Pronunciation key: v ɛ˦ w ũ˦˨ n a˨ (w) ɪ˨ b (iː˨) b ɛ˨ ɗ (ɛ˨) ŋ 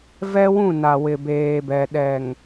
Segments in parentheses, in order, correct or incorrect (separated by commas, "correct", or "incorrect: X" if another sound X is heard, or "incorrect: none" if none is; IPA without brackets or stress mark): correct, incorrect: eː˨, correct